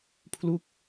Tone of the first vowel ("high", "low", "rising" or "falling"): falling